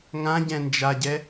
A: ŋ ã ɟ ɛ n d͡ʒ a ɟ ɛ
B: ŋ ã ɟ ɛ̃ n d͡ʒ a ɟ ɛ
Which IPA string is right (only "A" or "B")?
B